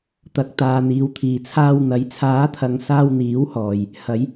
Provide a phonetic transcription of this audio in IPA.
t̪ɐ˨k̚ t̪aː˨n̪iː˨wt̪ʰiː˨t͡sʰaː˧w n̪ɐ˨˥jt͡sʰaː˨˥t̪ʰɐ˨ŋ saː˧wn̪iː˨˥whɔː˨j | hɐ˨˧j

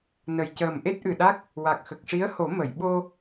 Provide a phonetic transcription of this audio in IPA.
nə˨˩jcəː˨˩m ʔe˦˥t̚ʔɨ˨˩ɗa˦˥k̚ | wa˨˩k̚xə˨˩k̚ʂi˧˥ə̯ho˨˩˦ mə˨˩˨j ɓo˧

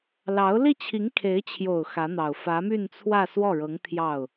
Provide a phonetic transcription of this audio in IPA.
lɑ˧˥ʊ̯ li˥˩t͡ɕʰi˧˥ŋ kʰe˧˥ɪ̯t͡ɕʰjo˨˩ʊ̯ xä˧˥n̪ɑ˨˩ʊ̯ fä˧˥my˥˧nt͡sʰwä˥˧ swɔ˥˩ɻɤ˧˥ŋ t̪ʰjɑ˥˩ʊ̯

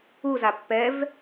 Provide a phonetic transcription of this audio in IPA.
uza pːɛv

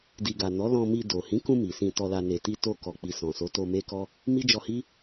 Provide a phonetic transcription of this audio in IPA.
di˨ɡa˨ nɔ˨˦lɔ̃˧ mi˧do˨ hĩ˨˦kũ˧ mi˨sĩ˧ tɔ˧la˧ ne˨ti˧ to˧kɔ˨k͡pi˨ sɔ̃˨so˨˦to˧ me˦kɔ˦ | mi˦d͡ʒɔ˧hi˦

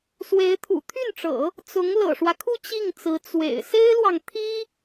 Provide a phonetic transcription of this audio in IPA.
swe˧˥ɪ̯ t̪ʰṵ˨˩t̪ʰy˥˩nʈ͡ʂɤ̰˨˩˦ | t͡sʊ˧˥ŋ lɤ̰˨˩ʂwä˦kʰu˥˧ t͡ɕi˥˩ŋt͡sɹ̩˧˥ t͡swḛ˨˩ɪ̯ se˥ɪ̯lwɑ˨ŋt̪ʰi˥

